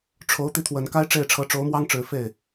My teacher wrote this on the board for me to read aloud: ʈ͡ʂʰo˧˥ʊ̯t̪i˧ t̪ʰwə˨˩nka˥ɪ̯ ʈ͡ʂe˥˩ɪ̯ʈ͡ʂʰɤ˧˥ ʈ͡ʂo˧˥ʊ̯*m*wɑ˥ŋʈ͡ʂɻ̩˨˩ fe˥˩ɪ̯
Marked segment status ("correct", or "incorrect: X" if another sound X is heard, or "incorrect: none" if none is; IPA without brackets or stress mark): correct